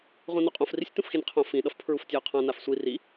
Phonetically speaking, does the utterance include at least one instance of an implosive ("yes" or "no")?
yes